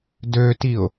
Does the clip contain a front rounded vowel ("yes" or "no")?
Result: yes